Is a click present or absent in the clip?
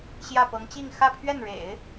absent